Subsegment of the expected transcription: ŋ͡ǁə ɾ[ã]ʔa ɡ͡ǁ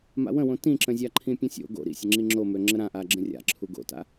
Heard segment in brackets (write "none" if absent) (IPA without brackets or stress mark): ã